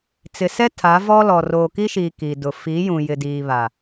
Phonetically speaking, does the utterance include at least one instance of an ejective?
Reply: no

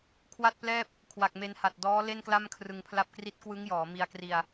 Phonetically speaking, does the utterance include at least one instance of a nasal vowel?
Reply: no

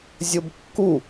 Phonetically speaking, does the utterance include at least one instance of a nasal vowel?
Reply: no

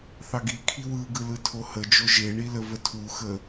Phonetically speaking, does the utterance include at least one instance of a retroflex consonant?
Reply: yes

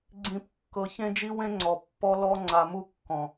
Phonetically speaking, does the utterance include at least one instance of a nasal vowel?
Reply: yes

